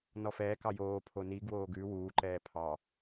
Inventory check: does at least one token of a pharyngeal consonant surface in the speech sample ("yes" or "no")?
no